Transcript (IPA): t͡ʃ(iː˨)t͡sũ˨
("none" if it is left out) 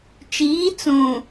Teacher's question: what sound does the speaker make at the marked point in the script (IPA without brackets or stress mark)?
iː˨˦